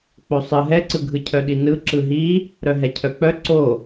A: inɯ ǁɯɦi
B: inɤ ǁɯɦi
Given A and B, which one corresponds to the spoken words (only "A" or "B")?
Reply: A